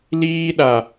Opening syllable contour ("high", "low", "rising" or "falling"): high